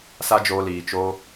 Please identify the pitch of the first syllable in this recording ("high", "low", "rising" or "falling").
high